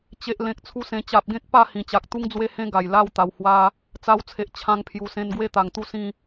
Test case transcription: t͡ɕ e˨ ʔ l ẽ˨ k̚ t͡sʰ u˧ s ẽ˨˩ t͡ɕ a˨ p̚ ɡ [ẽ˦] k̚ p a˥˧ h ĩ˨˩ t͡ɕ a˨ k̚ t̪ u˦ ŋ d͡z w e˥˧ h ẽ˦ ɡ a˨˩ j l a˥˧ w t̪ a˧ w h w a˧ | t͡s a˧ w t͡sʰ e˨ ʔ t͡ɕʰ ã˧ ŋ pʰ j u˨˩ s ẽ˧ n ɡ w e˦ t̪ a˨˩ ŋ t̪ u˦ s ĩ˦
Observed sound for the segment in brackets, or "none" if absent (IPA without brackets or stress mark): ẽ˦